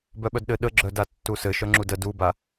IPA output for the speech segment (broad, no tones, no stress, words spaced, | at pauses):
bœɓœdɗɘ ɗəɡ͡ǁœda tːusɘ ʃœŋ͡ǁudə duba